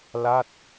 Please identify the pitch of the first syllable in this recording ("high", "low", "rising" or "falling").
falling